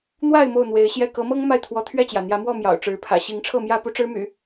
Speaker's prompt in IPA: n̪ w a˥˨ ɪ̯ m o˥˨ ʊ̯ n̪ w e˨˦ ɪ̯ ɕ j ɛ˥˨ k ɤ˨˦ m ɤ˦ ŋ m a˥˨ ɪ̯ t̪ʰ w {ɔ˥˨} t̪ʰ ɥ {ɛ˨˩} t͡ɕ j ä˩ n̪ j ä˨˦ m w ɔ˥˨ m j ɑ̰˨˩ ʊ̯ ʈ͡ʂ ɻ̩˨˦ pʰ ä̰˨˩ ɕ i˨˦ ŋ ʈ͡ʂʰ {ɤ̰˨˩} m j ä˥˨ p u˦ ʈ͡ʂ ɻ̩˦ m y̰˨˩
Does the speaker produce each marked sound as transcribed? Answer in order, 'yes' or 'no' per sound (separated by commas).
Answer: no, no, no